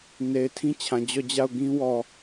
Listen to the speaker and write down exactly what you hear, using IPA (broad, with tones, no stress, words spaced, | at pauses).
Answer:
ne˨ɪ̯tʰĩ˦t͡ɕʰã˨ d͡ʑɔ˦˨d͡ʑa˦˨ʊ̯ ɡĩ˦wɔ˨